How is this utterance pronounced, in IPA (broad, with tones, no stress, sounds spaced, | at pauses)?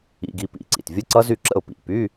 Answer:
ḭ˧˥˧ ɡ i˧˥˧ p ḭ˧˥˧ ǀ ḭ˩ t vʲ ə˦˥ ǀ ʌ˦˥ z y˥˩ ǁ ə̰˥˩ ʊ̯ p ḭ˩˧˩ p y˧˥˧